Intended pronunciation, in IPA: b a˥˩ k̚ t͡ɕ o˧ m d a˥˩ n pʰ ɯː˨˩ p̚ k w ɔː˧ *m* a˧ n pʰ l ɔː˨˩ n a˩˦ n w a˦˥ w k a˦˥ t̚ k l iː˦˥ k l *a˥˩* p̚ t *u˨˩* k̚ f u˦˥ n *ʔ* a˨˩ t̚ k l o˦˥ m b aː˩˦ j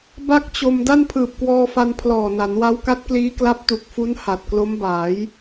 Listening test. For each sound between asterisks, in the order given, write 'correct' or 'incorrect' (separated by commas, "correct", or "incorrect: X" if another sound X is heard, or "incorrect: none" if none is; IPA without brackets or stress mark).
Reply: incorrect: f, incorrect: a˦˥, correct, incorrect: h